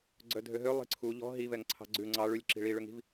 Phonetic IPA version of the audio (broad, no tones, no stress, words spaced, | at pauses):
ɡ͡ǀœdʱøɦø lˠi̤ǀʰu ʎɔ̤ ɦivɛŋǀʰɑ̤ ɡ͡ǀʉ ŋ͡ǀɑ ɭʉlʲǁi̤ ɭiɭøŋi̤v